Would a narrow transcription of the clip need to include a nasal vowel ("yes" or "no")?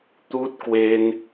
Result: no